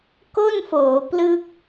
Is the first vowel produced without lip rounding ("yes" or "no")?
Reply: no